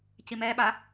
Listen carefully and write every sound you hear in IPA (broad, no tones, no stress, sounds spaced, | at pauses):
c i m ɛ ɓ a